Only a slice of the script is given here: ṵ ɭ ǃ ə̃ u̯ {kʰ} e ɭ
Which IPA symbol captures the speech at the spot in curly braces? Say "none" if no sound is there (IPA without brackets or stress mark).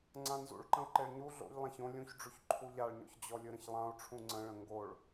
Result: ǃ